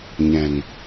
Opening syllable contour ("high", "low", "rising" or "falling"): low